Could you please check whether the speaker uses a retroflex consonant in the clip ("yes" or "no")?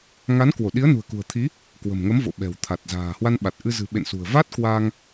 no